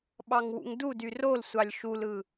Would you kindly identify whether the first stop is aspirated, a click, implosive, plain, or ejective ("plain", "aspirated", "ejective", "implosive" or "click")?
implosive